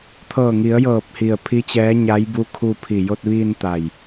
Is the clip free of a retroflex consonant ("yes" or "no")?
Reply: yes